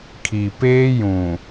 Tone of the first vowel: low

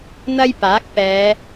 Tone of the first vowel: high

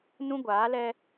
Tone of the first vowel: high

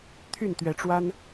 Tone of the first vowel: falling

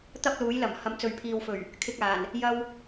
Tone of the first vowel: high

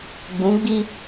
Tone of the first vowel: rising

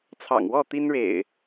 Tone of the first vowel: low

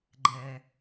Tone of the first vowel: low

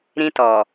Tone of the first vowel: high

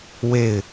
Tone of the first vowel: falling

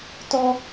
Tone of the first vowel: high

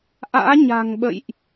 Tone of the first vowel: rising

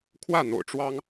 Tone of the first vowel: falling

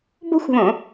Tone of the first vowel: high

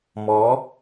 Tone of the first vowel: rising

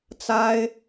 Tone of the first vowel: high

